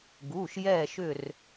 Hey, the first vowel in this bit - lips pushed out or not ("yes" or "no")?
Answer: yes